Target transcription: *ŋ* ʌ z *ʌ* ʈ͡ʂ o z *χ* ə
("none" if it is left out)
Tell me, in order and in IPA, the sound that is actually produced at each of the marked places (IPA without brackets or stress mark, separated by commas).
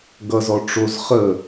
ɡ, ɔ, χ